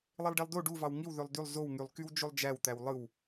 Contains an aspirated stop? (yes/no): no